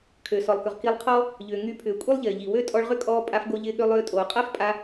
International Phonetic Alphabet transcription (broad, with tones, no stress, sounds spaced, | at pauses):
kʰ ø˩ s ɔ˩ lˠ k ʏ˩ ʁ k i˧ lˠ qʰ ɔ˥ | ʎ ʏː˩ ŋ y˧ pʰ ʏː˩ kʷʼ i˥ lˠ ʎ ɪː˩ ʎ i˩ w ø˥ tʼ ɔ˧ ɭ ʁ ʏ˥ kʼ ɔː˧ pʼ a˧ f ɡ o˧ ʎ ɪː˧ ɠ ø˧ lˠ ʏː˧ tʼ oː˩ qʼ a˥ f pʼ a˧